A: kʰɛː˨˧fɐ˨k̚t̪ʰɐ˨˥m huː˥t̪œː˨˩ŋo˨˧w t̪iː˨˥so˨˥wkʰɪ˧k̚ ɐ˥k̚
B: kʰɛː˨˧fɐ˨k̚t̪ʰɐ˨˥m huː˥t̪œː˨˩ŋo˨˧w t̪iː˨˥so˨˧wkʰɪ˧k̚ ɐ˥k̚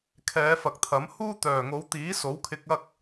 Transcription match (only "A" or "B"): A